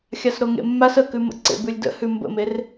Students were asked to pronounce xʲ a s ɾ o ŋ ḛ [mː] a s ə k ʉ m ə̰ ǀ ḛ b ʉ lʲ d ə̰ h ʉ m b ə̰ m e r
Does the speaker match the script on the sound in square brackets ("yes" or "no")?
yes